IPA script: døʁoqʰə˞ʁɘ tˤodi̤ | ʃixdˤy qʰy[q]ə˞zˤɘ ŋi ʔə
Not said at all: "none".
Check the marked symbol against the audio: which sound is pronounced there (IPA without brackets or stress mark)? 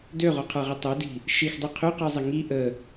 q